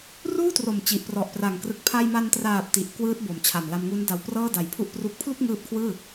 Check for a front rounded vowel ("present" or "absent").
absent